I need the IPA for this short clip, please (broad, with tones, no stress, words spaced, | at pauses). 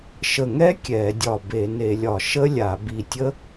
ʃə˧˩ ŋɛ˦˥ kʲɛ˧˩˧dʲɒ˧˩ be˧˩˧ne˧˩˧lʲɒ˧˩˧ ʃə˦˥lʲa˧˩˧bi˧˩tʲə˦˥